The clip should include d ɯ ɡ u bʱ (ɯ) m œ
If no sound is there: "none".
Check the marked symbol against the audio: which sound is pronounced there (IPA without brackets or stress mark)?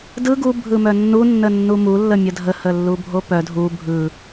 ɯ